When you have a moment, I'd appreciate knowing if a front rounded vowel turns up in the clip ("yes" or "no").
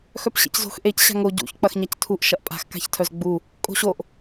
yes